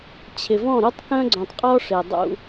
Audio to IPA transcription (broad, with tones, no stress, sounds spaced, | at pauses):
t͡ɕʰ ɪ˨ v ɔ̃˦˨ ɾ u˦ tˤ k œ̃˦ ɡ͡ǀ œ̃˨ tˤ qʼ ɔ˦ ʂ e˨ dˤ ṵ˦